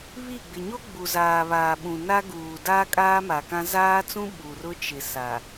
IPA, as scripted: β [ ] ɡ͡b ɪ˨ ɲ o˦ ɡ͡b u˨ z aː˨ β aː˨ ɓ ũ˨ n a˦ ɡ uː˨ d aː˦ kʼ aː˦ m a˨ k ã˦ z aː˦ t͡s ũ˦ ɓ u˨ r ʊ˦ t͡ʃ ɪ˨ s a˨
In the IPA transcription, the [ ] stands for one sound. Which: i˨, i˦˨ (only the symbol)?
i˦˨